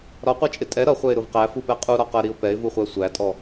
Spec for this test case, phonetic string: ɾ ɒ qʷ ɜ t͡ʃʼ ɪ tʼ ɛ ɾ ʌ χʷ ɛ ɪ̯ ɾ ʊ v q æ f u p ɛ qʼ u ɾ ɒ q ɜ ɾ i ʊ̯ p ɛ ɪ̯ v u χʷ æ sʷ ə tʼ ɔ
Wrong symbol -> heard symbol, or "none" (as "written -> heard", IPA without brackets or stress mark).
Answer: ə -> æ